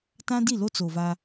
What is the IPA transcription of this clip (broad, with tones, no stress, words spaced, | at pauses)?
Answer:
tã˦di˦˨lo˦ t͡so˨va˦